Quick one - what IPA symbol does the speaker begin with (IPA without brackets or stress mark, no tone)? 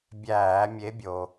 bʲ